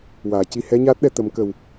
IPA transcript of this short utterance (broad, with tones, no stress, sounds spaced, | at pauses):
w aː˨˩˨ c i˧ h ɛ˧˥ ɲ aː˦˥ t̚ ɗ ɛ˧ t̪ ə˨˩˦ m k ə˨˩ w